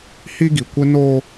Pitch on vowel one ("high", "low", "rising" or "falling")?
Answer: high